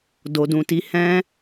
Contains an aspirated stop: no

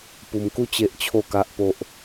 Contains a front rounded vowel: no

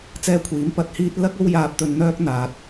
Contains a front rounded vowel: yes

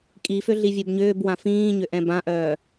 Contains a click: no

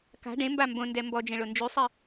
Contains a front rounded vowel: yes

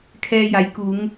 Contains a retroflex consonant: no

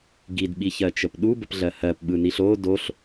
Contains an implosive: yes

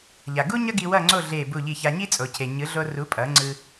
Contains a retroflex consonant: no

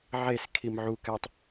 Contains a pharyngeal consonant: yes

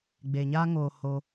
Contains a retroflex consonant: no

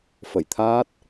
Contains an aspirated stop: yes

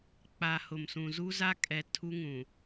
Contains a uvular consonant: no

